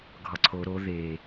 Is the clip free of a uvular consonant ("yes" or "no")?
yes